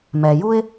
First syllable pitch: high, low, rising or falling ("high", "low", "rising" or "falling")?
low